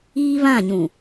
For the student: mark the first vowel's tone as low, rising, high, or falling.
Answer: high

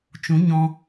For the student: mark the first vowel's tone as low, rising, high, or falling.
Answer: rising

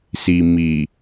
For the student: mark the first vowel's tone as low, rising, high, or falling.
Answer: low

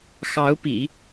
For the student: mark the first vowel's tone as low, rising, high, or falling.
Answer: rising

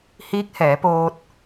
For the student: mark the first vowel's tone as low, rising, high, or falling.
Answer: rising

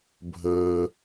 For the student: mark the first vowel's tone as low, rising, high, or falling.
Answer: low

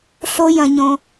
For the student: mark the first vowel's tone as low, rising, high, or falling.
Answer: high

